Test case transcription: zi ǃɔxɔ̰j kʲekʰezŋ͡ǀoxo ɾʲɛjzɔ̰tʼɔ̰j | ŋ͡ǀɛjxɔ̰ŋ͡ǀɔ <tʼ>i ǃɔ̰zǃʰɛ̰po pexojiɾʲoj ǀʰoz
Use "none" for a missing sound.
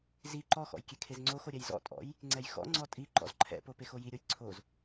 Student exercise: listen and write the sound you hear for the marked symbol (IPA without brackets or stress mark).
tʼ